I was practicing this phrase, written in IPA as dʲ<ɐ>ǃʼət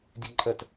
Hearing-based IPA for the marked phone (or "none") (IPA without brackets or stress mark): ə